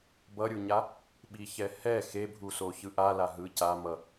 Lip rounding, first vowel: unrounded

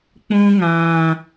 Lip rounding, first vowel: rounded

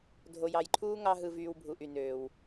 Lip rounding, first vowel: rounded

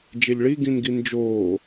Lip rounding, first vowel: unrounded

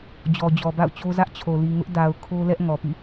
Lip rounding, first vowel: rounded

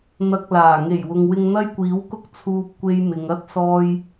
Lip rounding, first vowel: unrounded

